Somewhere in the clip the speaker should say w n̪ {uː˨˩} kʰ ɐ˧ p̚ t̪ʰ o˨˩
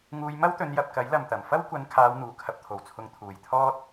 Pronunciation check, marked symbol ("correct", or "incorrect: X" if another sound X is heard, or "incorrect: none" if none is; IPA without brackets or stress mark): correct